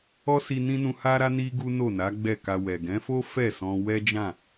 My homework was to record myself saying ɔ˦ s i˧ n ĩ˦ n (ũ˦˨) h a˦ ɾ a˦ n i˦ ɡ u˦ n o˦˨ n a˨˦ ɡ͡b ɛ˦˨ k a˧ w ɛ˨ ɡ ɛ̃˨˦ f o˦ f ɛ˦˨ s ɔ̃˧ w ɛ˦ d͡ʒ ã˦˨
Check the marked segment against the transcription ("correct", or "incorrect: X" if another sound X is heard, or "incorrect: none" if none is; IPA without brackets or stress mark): incorrect: ũ˧